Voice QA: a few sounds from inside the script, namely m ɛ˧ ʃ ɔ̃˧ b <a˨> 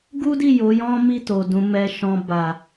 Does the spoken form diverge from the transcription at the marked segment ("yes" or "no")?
no